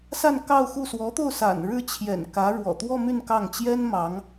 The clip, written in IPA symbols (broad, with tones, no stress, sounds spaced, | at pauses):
s a˥˧ n k ɑ˥˧ ʊ̯ x u˥˩ s w ɔ˧˥ t̪ o˥˩ ʊ̯ s a̰˨˩ n ɻ ɻ̩˥˩ t͡ɕʰ j ɛ̰˨˩ n k ä˧˥ ɻ w ɔ̰˨˩ t̪ w ɔ˥˧ m y˥˧ n k ɑ˥˩ ŋ t͡ɕ j ɛ˥ n m ɑ˧˥ ŋ